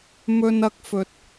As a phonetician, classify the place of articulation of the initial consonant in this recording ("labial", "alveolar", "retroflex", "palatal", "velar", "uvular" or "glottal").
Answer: labial